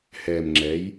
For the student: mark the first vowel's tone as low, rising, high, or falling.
low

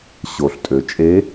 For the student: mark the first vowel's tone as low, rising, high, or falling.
low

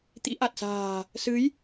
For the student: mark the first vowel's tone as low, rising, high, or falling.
rising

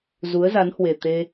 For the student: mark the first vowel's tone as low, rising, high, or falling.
rising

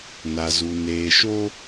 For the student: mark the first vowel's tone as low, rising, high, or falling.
low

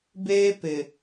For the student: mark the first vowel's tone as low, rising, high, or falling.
high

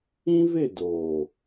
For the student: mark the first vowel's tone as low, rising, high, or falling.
high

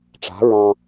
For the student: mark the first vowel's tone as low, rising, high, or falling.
rising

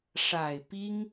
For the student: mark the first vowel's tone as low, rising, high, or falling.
low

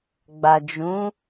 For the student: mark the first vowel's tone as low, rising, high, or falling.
low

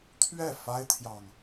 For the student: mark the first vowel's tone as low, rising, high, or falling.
falling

